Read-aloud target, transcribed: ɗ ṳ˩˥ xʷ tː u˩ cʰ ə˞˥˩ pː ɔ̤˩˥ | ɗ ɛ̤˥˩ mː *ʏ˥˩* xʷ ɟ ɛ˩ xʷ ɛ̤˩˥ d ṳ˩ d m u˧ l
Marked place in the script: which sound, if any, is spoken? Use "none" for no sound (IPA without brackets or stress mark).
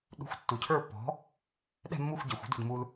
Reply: u˥˩